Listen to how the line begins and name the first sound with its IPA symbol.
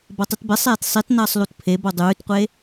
b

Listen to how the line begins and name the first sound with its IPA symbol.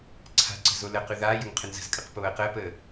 ǀʰ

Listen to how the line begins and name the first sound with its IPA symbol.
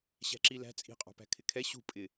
ɕ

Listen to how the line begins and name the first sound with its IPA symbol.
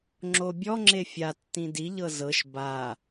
ŋ͡ǁ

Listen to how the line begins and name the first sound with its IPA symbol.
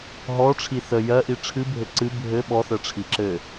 ɦ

